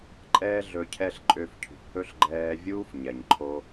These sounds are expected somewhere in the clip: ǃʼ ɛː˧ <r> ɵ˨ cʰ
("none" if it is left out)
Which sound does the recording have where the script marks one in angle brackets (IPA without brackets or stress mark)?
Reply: ɮ